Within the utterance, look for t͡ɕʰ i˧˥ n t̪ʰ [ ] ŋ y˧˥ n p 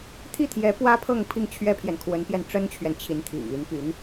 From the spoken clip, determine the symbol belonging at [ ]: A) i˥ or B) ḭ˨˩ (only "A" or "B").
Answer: B